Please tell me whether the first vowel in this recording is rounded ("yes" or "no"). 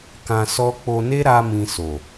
no